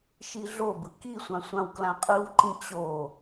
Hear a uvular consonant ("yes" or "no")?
yes